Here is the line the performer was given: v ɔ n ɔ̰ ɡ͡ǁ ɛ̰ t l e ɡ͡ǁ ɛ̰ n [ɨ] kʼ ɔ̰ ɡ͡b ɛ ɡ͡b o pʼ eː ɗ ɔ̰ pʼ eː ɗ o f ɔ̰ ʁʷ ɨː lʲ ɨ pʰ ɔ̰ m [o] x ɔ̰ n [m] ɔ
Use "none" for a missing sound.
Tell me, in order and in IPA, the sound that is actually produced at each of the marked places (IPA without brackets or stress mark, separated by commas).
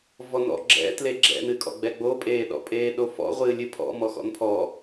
ɨ, ɔ, pʰ